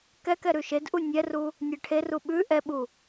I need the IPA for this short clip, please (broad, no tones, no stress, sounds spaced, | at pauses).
k ɛ k ɛ ɾ ʉ ʃ e d ʔ u nʲ ɛ r u | nʲ ɛ ʈʰ e r u ɓ ʉ ʔ ɛ ɓ u